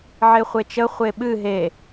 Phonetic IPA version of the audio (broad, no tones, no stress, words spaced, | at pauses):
ʕeχʷet͡ʃə χʷeɓɨ ɦe